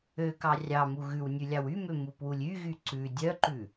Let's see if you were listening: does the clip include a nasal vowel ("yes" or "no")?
no